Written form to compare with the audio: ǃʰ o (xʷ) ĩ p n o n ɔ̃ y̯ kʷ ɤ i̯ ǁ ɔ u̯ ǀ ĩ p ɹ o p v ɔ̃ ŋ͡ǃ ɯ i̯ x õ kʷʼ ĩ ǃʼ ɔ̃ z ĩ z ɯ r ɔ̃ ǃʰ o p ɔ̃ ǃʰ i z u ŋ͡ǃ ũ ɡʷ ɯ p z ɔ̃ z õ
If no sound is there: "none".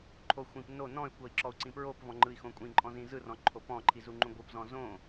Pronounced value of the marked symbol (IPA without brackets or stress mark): xʷ